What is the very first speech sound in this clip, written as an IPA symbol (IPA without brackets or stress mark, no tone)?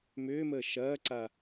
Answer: m